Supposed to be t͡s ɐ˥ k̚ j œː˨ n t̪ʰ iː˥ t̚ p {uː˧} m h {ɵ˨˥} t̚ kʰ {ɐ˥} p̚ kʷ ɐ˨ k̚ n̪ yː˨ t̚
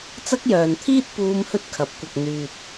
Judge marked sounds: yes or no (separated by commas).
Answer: no, no, no